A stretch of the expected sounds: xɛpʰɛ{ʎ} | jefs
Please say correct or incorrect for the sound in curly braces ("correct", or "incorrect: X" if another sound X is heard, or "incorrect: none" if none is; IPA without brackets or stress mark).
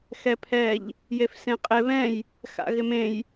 correct